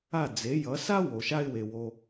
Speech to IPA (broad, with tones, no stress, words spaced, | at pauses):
a˥˩d͡ze˩˥ jʌ˩˥ sa˥ wo˩ʃa˥ɪ̯we˩ wo˧